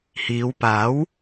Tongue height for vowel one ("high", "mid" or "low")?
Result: high